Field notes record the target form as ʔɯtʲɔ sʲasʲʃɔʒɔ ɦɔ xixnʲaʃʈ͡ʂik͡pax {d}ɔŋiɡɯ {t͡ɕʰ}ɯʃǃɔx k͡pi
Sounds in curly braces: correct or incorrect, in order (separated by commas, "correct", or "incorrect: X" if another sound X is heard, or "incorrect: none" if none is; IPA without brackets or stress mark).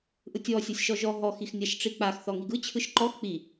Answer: incorrect: θ, correct